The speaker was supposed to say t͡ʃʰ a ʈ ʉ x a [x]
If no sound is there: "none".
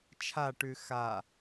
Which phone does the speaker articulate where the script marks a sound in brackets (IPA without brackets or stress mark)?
none